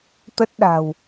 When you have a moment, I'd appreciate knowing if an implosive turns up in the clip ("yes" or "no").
yes